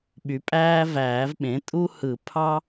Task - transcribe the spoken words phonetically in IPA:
ɓy˩˥pʼæː˦ væː˨˩˦vɓẽ˩˥ tʼu˦hɯ˨˩˦ pʰɑ˦

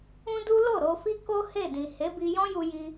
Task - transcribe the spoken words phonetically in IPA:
ũ˦ du˦lo˦˨ ɾo˧fi˦ ko˦ he˦˨dĩ˨ he˨˦bi˧jɔ̃˦ju˧ ji˧

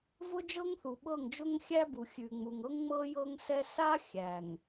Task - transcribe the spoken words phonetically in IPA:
vʊ˦d͡ʒɤ˦ŋθu˨ɓɤ˦˨ŋ d͡ʒʊ˦ŋxʲæ˦bu˨ xʲʉ˨ŋ͡mu˨ŋɤ˦ŋŋ͡mɤ˦ jɤ˦ŋsɛ˦ sa˦ xʲæ˨ŋ

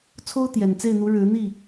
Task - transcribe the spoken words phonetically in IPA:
t͡sʰo˦ʊ̯t̪jɛ˨˩nt͡se˥˨ɪ̯n̪u˨˦ ɻɻ̩˨˦n̪i˥˨

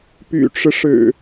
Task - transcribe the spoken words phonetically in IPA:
py̰˨˩ʈ͡ʂɻ̩˦ ʂɻ̩˨˩

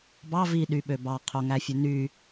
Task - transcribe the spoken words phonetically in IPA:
bɑ viɗyɓø bɑqʰoŋæfʲø ny

